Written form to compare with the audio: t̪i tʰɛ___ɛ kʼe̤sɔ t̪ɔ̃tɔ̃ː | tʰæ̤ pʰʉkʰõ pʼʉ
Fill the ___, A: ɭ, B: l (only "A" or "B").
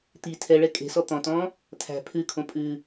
A